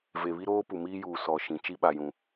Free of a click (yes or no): yes